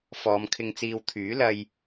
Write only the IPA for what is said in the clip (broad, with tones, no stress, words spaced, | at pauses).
fɔː˨˧mkʰɪ˧ŋt͡siː˧w t̪ʰyː˨˥lɐ˧j